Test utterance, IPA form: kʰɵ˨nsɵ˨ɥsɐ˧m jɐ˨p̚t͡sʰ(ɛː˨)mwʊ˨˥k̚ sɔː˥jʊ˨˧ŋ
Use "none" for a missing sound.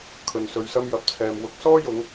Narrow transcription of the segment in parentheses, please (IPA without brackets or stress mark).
ɛː˨